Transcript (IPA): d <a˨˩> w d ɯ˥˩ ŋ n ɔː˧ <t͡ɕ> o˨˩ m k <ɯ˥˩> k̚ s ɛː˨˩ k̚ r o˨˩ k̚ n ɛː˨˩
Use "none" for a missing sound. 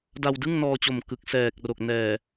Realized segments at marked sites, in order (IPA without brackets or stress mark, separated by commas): a˧, t͡ɕ, ɯ˨˩